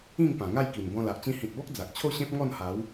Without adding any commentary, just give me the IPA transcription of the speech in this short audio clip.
ĩ˥˧ŋpã˨˩ŋa˥˧jki˨˩n bɔ̃˧la˨ʔ t͡ɕĩ˧hĩ˨t̚bɔ˦k̚ d͡za˨k̚ t͡ɕʰo˥˧ɕẽ˦p̚ ŋɔ˥˧nha˨˦w

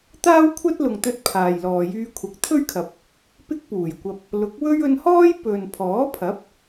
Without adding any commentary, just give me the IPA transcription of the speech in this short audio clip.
t̪aː˥wkʷʰɐ˥t̚lʊ˨ŋt̪ɵ˧t̚ pʰaː˨jlɔː˨jyː˥kʷʰɐ˧k̚ t̪ʰɵ˥ɥkʰɐ˨p̚ | pɪ˥k̚puː˨˩jkʷɐ˧p̚ | lʊ˨˥k̚wɵ˥ɥ ɵ˧nhɔː˥j pɵ˨n pʰɔː˨˥pʰɐ˨˥p̚

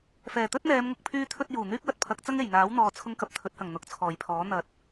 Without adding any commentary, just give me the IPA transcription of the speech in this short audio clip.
fɛː˨˩t̪ɵ˥t̚n̪ɛː˨˧mŋʊ˨k̚ pʰyː˧t̪ʰɵ˧t̚ juː˨˩n̪yː˥k̚wɐ˧t̚pʰɐ˨˥k̚ t͡sɐ˥ŋe˨˩jn̪aː˨˥w n̪ɔː˨t͡sʰʊ˧ŋ kɐ˨p̚t̪ʰɵ˨˥t̚hɐ˨˩ŋ n̪ʊ˨˥k̚t͡sʰɔː˨˩jpʰɔː˨˥ n̪ɐ˨t̚

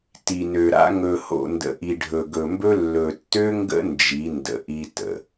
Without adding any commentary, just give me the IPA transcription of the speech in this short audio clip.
ti˨nø˨ɾa̰˦ ŋɵ˨ho̰˨ndə̰˨ ʔi˨ɖʱɵ˨ɡɵ˨mbɵ˦ lːɵ˨tːø˦ŋɡə̰˦ nd͡ʒi˨˦ndə̰˨ʔi˦ tə̰˨

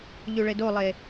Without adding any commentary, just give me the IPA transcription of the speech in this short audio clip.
ʎyɭedolˠe

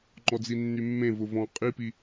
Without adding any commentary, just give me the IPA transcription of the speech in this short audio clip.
ŋ͡ǃɔd͡zinːymːẽ vʊvɔ̃ qʼipi

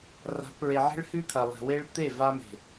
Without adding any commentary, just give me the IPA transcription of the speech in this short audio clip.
ra̤˨˦pɹe˨ʕe̤˦ɭ hʉ˦t̪ʰɐ˨ lˠe̤˨we˦ɭ t̪e˦˨ va˦me̤˨

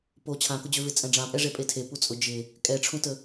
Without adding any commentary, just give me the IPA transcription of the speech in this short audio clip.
po t͡ɕʰãkʊd͡ʑøvɪ t͡sʼɛ̃ɖ͡ʐãpʼɛ ʐepʼetʰe put͡sʼʊ d͡ʒɪ | kʼɛʈ͡ʂʰũtə

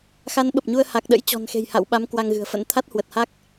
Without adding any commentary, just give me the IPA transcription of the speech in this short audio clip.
xa˨˦nɓə˨˩p̚ɲu˧ə̯ ha˨˩k̚ɗə̰˧˥jt͡ɕɔ̤˨˩nxe̤˨˩j ha̰˧˨wɓa˨˦m kwa˧ŋɣɨ̤˨˩ə̯fə̰˧˥n t̪ʰa˦˥t̚hwə˨˩t̚ha˦˥k̚

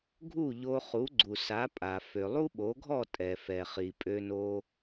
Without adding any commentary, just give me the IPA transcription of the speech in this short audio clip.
ɡʱu˥˩ʎo˧χu˩˥ ɡ͡ǀu˩sa˩˥pʼa˩ fø˩lˠu˥ɓo˩˥ɡʱɔ˥˩ tʼɛ˩fɛ˩ χi˩pʼø˧no˧

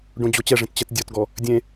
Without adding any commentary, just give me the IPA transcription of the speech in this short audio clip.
ɖõd͡ʑot͡ɕɛʐẽt t͡ɕɛtdʲɔtɡɔ | dʲẽ

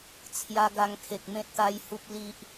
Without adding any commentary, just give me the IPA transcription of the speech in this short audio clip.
t͡sʰja˧ɡa˧ŋkʰe˨k̚ mẽ˦t̚t̪a˦jhu˦p̚ li˦ʔ

